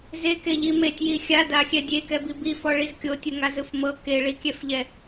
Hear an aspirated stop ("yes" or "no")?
no